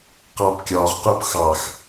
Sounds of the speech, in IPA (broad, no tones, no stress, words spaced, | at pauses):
qɑpkʲɒʁqup xɑx